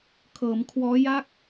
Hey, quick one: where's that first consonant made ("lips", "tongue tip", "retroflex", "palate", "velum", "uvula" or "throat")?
velum